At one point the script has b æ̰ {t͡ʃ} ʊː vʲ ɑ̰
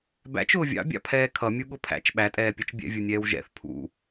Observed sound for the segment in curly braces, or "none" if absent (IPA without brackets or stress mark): t͡ʃ